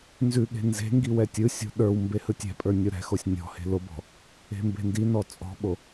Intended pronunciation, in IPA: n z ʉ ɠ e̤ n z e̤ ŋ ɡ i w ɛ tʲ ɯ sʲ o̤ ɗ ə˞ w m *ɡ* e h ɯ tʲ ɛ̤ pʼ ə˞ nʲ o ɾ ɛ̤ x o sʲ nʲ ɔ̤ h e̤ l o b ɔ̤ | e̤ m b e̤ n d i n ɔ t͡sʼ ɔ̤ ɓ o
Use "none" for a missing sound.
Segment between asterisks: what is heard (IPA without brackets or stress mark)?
b